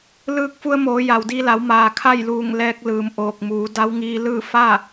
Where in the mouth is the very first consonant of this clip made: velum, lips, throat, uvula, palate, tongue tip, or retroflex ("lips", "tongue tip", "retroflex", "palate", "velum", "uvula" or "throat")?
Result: tongue tip